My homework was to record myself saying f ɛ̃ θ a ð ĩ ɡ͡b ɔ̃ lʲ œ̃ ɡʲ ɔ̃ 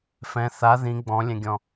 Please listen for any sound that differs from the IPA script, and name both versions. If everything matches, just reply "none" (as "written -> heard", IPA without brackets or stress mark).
œ̃ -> ɛ̃